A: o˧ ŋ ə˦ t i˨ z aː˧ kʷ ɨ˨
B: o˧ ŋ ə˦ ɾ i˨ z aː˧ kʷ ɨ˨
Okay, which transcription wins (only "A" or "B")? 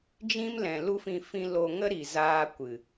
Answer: B